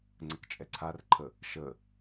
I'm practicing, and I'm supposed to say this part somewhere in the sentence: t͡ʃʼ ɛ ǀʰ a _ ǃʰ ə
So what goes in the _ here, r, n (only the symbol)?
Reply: r